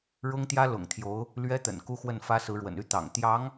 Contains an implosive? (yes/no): no